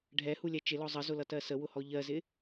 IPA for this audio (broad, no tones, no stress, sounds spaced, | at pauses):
ɖʱ ɛ h u lʲ ɛ t͡ʃ ɪ l ɔ zˤ ə z ʊ l ʌ t ɜ s ə w ʊ h ɔ ʎ ɜ z ɪ